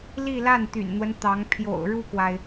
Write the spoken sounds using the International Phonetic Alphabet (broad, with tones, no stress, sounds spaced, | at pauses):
l i˥˧ l a˥˩ n t̪ y̰˨˩ n n̪ w ə˦ n t̪ ɑ˧˥ ŋ pʰ j o̰˨˩ ʊ̯ ɻ u˥˩ k w a˩ ɪ̯